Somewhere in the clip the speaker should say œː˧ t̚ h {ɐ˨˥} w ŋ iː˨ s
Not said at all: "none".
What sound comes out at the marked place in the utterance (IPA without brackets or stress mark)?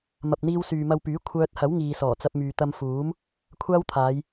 ɐ˨˥